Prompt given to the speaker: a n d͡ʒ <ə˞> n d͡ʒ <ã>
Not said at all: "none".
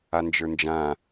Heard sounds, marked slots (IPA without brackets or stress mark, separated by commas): ə˞, ã